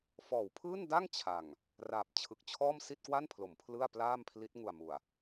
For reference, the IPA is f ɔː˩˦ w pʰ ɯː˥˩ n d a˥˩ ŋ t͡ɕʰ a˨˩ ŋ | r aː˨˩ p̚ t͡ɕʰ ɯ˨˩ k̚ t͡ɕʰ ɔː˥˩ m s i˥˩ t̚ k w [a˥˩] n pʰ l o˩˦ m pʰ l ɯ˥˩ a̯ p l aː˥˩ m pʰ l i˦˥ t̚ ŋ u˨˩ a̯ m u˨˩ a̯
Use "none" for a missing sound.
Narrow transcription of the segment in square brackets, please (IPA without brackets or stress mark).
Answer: a˥˩